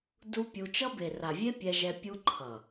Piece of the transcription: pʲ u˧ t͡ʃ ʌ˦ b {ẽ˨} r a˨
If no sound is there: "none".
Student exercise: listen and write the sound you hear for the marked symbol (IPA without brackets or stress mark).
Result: e˨